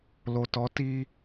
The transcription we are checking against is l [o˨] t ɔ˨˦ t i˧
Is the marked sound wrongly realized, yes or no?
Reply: no